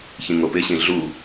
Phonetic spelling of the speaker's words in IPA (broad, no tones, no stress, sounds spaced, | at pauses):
ç ĩ ŋ o p ɪ ɕ ĩ ɮ u